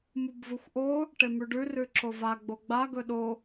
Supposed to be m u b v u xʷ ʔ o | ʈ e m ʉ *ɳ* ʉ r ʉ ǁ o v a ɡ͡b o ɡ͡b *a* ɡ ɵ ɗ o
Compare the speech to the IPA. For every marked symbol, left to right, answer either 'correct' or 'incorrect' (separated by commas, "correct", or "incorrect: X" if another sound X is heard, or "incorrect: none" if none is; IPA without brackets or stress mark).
incorrect: ɖ, correct